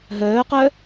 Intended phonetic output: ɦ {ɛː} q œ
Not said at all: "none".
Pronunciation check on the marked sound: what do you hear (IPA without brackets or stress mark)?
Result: œː